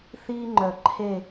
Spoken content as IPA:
θiː˦ŋ͡ǃœ˨ ǃʰe˦˨

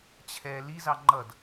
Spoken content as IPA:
t͡ɕʰɛ lizɑ ŋ͡ǃʌd

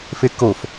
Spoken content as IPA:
fekof

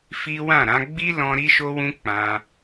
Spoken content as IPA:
fi˦ wã˦˨ɾã˨˦ ɡ͡bi˦lɔ̃˧ ɾi˧ʃo˧wũ˧ k͡pã˧

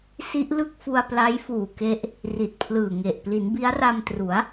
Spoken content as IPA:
si˦˥ʔlɯ˥˩k̚fu˧a̯ pla˦˥jfuː˨˩ke˦˥ʔ | ri˨˩t̚pʰlɯː˨˩ŋe˨˩ʔ pli˩˦nbi˦˥a̯ra˧mtru˩˦a̯

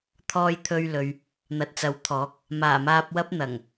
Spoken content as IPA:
t̪ʰɔː˧jt̪ʰɵ˧ɥlɵ˨ɥ | n̪ɐ˨t̚t͡sɐ˨˥wt̪ʰɔː˨˥k̚ | maː˨˩maː˧p̚wɐ˥p̚n̪ɐ˨˩ŋ

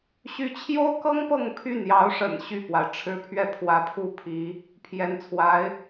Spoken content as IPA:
ɕy˧˥t͡ɕʰjo˥ʊ̯kɤ˥ŋ pɤ˥˧ŋ pʰy˥˩njɑ˧˥ʊ̯ʂə̰˨˩n ɕy˥˩pwa˩ɪ̯ʈ͡ʂʰɻ̩˥pʰɥɛ˥˩ pʰwä˧˥ pʰu˥˩pʰi˧˥ | pʰjɛ˧˥nt͡sʰwa˧˥ɪ̯

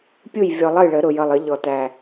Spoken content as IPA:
pʲu˥˩jvʲɔ˨˩˦lˠ ʌ˥˩jɭə˨˩˦ ɾʊ˨˩jʌ˨˩lˠə˨˩˦ʎɔ˨˩ tæ˨˩

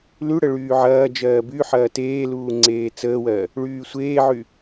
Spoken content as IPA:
lyɽə ɭyːʕɐːd͡ʒɜː byħɐː teːluː ŋ͡ǀeːt͡səːwɜ | ɭyːsʷeːʕy

